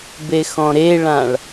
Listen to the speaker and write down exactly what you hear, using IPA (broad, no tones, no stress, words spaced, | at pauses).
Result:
bexɔ̃ɾeɭãɭ